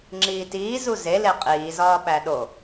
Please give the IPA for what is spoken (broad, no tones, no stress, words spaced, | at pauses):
ŋ͡ǁiːtiː zuze leqʼiː zɒːɓæɗo